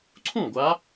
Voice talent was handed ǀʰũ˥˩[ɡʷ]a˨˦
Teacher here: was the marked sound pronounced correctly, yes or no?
yes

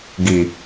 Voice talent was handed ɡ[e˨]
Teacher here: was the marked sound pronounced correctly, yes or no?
no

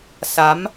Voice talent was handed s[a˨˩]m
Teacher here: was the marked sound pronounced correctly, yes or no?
no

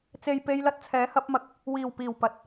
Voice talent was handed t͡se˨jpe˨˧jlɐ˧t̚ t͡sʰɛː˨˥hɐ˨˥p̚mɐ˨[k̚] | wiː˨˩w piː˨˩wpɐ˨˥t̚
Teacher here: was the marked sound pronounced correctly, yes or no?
yes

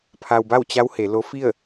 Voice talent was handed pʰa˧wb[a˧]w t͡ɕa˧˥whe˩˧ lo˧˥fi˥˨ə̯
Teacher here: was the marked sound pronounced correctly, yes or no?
no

